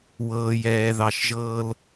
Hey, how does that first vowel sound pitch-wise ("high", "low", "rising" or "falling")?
low